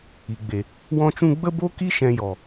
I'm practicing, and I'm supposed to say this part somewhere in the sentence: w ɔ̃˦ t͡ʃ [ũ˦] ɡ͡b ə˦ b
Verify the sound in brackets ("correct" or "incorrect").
correct